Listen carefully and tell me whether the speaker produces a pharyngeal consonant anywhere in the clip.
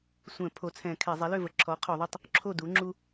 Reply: no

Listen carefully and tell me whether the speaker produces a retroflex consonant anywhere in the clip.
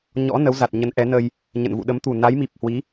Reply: no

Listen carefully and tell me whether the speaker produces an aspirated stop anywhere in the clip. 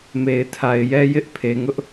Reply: yes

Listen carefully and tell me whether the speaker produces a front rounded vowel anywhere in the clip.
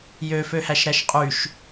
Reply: yes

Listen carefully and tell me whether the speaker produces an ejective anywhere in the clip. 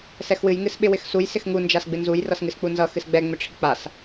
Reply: no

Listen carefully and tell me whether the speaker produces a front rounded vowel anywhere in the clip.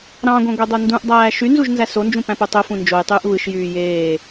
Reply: yes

